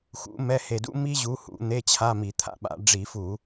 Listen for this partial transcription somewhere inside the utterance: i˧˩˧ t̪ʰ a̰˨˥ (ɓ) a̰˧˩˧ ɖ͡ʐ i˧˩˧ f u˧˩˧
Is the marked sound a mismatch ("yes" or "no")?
no